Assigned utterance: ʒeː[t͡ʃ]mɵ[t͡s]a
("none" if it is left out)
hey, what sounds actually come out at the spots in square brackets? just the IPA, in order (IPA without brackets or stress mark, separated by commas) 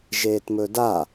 t, d